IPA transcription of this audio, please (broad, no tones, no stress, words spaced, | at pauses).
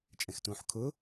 t͡ʃʼɛ̃xtũːħkʰʊ